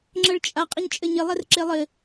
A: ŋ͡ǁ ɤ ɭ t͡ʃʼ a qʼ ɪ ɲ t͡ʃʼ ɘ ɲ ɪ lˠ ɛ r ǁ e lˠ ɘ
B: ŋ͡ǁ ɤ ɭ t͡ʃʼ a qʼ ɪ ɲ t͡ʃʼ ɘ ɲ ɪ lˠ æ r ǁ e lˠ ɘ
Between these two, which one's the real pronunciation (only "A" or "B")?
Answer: A